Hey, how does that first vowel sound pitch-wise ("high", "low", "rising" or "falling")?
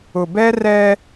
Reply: low